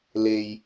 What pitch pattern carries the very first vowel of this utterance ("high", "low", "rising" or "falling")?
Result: low